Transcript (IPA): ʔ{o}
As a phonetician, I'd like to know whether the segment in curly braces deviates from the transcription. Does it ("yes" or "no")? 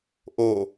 no